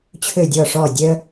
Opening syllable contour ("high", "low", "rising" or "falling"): falling